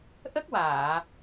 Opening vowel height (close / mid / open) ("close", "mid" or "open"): mid